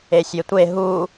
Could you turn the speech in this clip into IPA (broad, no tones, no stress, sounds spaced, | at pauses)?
e sʲ e tʷ e ɦ u